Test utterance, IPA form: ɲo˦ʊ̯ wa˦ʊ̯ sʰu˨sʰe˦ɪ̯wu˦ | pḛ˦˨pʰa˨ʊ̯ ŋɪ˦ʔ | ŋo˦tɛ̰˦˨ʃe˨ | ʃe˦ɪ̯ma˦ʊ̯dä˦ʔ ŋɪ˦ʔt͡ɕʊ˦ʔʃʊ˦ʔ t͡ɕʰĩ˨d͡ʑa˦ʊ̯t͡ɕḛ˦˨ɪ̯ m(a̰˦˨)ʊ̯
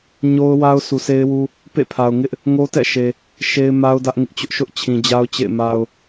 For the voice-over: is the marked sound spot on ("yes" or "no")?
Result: no